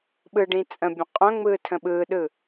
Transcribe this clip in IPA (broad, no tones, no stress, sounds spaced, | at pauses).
ɓ ɯ ɖ ĩ t͡sʼ ə̃ bʲ ə̃ qʼ œ̃ ŋ͡m ɯː tʰ ə̃ ɓ ɯː ɗ ɯ